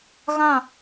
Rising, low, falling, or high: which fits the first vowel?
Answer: falling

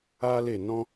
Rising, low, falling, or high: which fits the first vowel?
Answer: high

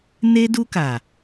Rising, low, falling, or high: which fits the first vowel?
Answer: high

